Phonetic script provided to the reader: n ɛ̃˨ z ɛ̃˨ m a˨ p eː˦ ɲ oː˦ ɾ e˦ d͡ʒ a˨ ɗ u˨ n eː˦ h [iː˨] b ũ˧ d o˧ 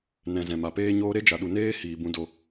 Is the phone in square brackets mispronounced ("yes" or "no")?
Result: no